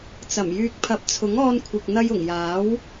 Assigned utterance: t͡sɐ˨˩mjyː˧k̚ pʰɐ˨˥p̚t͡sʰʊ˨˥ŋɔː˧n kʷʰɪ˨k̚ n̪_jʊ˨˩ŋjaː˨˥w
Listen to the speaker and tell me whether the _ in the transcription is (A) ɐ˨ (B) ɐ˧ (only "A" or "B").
B